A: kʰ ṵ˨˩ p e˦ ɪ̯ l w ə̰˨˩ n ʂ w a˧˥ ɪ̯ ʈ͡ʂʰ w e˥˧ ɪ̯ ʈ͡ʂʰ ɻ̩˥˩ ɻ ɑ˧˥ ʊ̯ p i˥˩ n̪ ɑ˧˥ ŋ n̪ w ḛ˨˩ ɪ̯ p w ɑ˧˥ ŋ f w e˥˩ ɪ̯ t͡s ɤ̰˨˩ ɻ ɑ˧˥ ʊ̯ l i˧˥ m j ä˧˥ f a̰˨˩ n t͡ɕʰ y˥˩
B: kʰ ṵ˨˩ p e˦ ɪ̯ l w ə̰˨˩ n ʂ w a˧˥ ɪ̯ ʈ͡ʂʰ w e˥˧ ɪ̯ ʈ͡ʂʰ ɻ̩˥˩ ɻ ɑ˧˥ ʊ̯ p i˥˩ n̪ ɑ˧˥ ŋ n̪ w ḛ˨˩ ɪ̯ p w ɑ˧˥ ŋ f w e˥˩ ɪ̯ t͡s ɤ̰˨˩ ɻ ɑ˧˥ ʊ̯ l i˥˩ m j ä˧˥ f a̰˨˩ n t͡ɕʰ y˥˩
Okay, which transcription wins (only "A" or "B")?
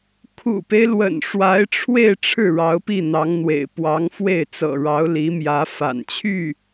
A